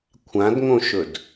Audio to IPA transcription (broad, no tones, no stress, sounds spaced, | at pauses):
kʷʰ ã d ŋ õ ʃ ɵ d